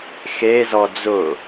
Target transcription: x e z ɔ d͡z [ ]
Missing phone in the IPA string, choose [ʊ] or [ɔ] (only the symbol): ʊ